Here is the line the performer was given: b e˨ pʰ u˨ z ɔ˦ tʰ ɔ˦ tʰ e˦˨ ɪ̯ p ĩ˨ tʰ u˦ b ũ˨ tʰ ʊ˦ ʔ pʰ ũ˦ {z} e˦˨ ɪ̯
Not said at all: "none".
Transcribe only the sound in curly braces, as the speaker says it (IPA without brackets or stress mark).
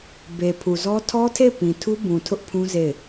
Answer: z